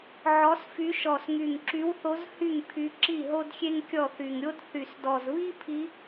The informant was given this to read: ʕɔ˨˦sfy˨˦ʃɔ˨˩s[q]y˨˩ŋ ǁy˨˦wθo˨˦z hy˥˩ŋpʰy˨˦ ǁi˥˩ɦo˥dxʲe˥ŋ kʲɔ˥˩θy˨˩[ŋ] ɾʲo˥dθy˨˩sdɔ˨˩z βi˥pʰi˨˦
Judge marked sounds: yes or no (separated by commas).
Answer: no, yes